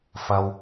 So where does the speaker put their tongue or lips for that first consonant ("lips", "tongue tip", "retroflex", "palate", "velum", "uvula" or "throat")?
lips